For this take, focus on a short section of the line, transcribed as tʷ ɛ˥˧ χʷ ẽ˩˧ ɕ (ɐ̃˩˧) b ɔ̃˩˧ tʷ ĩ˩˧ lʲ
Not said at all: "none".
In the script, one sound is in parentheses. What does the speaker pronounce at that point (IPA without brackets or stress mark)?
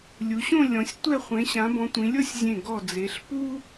ã˩˧